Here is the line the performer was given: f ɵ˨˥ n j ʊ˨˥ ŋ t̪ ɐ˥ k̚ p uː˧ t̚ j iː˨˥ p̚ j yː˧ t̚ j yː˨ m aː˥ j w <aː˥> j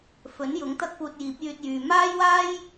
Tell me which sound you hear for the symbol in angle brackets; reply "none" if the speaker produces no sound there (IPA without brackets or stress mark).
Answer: aː˥